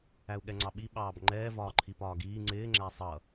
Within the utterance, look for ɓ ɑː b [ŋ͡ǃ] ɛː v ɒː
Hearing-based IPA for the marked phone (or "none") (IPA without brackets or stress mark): ŋ͡ǃ